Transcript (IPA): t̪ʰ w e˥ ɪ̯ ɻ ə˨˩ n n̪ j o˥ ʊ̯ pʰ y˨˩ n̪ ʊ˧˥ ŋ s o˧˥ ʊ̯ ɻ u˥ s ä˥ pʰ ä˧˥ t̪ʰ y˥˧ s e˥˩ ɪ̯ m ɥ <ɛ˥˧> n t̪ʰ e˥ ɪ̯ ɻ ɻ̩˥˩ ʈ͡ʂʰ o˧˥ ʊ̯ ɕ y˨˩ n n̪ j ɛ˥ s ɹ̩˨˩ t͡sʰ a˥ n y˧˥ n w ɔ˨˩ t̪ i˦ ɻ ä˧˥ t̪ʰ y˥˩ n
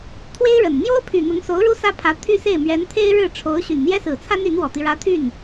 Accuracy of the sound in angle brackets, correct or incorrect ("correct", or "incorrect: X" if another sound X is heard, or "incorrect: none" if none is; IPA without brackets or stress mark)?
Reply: incorrect: ɛ˧˥